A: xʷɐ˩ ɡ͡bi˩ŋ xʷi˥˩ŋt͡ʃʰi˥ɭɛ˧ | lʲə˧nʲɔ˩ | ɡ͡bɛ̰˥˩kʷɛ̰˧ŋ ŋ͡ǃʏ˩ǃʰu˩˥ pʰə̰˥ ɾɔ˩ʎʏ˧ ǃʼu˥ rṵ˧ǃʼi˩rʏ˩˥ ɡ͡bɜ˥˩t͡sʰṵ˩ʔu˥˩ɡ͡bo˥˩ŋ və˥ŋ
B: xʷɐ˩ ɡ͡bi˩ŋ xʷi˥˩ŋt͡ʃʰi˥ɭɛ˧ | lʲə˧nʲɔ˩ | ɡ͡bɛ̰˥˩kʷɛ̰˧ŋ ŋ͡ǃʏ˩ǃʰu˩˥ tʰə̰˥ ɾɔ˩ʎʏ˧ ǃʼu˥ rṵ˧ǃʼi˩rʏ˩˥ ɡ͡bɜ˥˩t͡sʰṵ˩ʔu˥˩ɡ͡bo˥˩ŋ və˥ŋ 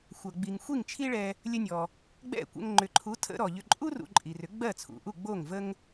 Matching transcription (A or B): B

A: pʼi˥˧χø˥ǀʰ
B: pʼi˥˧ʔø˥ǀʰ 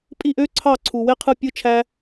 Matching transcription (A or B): B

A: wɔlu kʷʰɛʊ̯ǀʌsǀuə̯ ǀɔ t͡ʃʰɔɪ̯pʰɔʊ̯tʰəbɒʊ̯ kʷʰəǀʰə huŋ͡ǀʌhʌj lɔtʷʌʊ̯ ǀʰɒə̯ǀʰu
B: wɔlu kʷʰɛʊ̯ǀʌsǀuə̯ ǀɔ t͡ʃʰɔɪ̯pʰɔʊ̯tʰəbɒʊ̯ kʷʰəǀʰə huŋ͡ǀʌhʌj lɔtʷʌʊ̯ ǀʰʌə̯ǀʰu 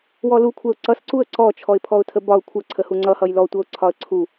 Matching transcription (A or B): A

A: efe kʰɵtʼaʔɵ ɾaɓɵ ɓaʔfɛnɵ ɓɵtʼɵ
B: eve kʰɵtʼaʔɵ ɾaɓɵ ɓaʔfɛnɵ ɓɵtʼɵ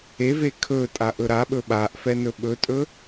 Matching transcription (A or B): B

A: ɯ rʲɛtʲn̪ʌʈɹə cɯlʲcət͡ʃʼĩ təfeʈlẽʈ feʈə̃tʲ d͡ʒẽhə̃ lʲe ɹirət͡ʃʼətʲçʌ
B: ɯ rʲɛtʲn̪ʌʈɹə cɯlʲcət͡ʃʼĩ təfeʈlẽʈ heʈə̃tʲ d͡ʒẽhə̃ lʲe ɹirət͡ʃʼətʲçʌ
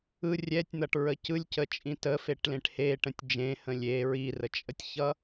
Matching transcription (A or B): B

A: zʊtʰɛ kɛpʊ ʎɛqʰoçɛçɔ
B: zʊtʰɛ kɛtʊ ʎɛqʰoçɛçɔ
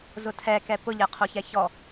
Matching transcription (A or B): A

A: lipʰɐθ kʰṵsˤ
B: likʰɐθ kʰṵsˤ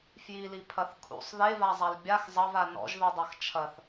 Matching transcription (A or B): A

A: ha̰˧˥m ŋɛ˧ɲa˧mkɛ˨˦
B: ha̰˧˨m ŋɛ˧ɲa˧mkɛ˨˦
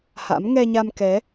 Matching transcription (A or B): A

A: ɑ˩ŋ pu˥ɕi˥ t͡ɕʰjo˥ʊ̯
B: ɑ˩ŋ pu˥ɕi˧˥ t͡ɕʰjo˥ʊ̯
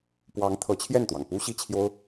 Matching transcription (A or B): A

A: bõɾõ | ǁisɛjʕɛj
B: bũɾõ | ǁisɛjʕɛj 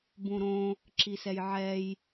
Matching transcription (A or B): B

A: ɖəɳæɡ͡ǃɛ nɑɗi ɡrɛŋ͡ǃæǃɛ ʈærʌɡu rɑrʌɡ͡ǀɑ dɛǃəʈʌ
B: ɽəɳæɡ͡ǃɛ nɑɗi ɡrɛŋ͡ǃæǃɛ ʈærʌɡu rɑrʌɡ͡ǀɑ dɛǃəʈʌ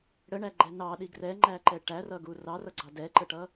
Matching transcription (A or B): B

